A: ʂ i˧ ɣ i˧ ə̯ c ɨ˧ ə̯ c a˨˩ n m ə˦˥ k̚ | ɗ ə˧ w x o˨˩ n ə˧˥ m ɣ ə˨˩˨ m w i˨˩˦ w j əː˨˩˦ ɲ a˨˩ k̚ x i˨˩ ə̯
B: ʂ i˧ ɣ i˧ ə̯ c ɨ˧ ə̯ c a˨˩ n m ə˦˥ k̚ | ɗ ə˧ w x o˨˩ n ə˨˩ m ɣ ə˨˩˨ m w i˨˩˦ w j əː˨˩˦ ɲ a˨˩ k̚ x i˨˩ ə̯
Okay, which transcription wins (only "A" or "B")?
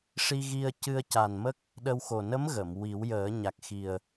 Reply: A